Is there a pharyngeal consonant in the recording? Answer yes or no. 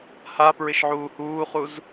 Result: yes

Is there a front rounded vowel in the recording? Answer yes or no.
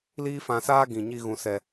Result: no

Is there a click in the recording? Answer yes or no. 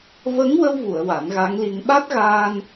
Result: no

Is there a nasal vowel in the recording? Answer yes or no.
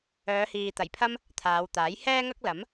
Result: no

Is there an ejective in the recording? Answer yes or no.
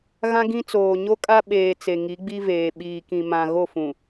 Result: yes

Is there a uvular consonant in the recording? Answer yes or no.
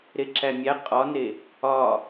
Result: yes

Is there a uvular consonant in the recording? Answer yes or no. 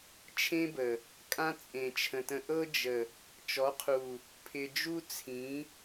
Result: yes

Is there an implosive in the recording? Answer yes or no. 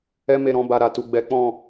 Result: no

